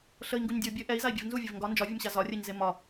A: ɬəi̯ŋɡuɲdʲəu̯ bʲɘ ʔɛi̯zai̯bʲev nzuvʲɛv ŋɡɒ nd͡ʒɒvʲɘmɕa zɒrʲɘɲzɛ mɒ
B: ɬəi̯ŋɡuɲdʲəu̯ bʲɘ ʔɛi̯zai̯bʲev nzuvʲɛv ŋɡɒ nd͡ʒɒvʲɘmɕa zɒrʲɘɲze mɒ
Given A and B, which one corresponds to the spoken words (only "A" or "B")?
B